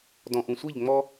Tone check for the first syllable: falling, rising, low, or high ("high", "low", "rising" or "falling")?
low